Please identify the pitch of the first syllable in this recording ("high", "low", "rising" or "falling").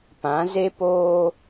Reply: rising